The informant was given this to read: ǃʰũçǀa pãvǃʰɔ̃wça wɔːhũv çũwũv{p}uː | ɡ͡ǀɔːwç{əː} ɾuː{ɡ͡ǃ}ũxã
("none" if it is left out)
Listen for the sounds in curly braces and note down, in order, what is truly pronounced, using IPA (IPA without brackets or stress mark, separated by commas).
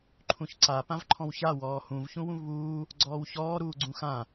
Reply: β, ɔː, ɡ͡ǀ